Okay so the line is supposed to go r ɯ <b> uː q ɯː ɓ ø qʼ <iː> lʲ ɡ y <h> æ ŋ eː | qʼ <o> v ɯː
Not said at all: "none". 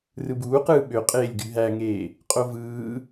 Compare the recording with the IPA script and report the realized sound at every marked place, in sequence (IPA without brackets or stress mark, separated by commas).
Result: b, eː, ɦ, o